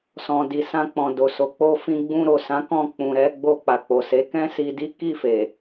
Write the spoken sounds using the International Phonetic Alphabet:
sɔ̃˨di˨sã˧ k͡pɔ̃˨do˨so˨ k͡po˧fĩ˧ɡ͡bũ˧ ɾo˨sã˨˦kɔ̃˧ k͡pũ˨ɾɛ˧ ɡ͡bo˧k͡pa˨k͡po˨se˨˦ kɛ̃˦si˧di˦ ki˦˨fe˨

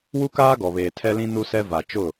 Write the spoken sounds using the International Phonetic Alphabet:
wu˦kaː˦ɡɔ˨βeː˨ tʰɛ˦lĩ˦ nu˦sɛ˦ va˨ t͡ʃʊ˦˨

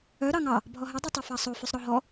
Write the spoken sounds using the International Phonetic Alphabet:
œ ɾɑŋɑ | bʱɔɦɛ dˤʉtˤefɑsˤo fʉsˤɾɔɦɔ

